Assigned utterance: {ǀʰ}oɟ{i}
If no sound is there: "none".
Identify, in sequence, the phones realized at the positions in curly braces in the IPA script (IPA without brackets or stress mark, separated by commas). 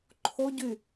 ǃʰ, y